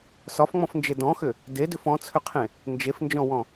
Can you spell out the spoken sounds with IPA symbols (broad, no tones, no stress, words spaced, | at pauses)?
sɒfŋ͡mɔ̃fnd͡ʒe dɔ̃xʏ | dedʏf ɔ̃t͡sʰʏqʰẽ | nd͡ʒefnd͡ʒɔ̃wɔ̃